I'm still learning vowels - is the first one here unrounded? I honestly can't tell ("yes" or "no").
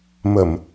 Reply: yes